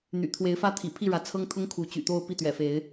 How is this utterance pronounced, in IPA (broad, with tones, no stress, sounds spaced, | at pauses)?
n̪ y̰˨˩ t̪ʰ w e˨˦ ɪ̯ f ä˦ t̪ʰ ḭ˨˩ pʰ i˥˨ ɻ ä˨˦ t͡sʰ ɤ˦ ŋ t̪ʰ ʊ˦ ŋ kʰ u˨˦ t͡ɕ y̰˨˩ t̪ o˥˨ ʊ̯ p i˥˨ t̪ ɥ ɛ̰˨˩ f e˨˦ ɪ̯